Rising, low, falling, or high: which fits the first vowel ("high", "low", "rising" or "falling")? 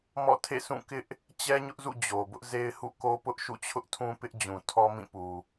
falling